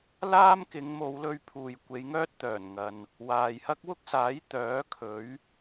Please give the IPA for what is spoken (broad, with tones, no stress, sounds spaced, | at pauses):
l aː˥ m k ɪ˨˧ ŋ m o˨˧ w l ɵ˧ ɥ pʰ uː˨ j kʷ e˨˧ j ŋ œː˥ t̚ t̪ œː˨˩ n ŋ ɐ˨ n | w aː˨ j h ɐ˥ k̚ w ʊ˥ k̚ s aː˨˥ j t̪ œː˨˥ kʰ ɵ˨˥ ɥ